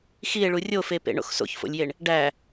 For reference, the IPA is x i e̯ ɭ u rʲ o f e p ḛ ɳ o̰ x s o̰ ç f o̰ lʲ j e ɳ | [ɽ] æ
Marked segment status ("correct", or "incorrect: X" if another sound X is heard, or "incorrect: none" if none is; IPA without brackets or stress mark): incorrect: ɖ